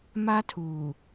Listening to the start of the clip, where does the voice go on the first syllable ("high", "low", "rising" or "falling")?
high